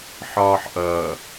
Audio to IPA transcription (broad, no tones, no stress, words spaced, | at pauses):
ħɒːħʔʌ